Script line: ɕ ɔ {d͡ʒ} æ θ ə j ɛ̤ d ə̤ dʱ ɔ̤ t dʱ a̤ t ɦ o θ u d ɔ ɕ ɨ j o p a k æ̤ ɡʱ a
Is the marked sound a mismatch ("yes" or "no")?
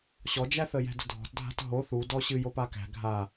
no